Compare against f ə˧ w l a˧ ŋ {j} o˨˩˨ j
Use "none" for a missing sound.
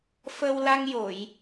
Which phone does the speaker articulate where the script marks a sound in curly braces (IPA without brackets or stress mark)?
j